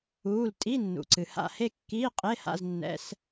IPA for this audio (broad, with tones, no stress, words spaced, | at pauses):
uː˩˧˩l tʼi˧˥˧nːṵ˩ǀɨ˩ ha̰˥˧he˥˧kːiː˧˥˧ qʼe˧˥˧ha̰˧˥˧z nːɛ̰˧˥˧s